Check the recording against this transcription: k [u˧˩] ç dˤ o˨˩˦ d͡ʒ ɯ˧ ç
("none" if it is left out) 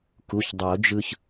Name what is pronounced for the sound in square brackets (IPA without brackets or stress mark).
u˩˧˩